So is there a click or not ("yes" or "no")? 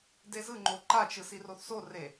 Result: yes